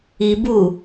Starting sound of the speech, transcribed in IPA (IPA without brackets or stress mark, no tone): i